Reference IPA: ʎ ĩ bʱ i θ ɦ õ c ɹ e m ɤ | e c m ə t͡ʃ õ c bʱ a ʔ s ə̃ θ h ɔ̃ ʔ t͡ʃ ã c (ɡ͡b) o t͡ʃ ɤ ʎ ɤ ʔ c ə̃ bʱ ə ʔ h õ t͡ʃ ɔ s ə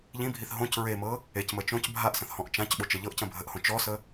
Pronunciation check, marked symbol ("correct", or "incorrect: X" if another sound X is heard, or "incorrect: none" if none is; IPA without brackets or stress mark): incorrect: ɓ